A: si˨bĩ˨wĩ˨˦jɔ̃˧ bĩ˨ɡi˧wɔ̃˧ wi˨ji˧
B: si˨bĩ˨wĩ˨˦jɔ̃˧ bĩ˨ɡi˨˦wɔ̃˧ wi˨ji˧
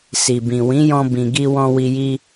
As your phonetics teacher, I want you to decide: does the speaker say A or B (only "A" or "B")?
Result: A